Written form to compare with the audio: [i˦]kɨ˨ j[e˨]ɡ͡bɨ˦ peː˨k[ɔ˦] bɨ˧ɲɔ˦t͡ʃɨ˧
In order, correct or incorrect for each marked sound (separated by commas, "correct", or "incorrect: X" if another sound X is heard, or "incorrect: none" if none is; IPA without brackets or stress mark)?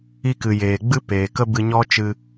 incorrect: i˧, incorrect: eː˨, incorrect: ə˦